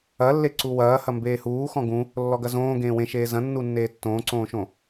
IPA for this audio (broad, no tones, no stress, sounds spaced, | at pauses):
ɐ lː e ǀ u w ɐː h ɐ m b eː h uː x ɔ̃ ɡ ũ | lː ɔ ɡ ɐ z õː ɡ ẽː w ẽ ʃ eː z ɐ̃ nː u nː eː tː õː ǀ õː ʃ õ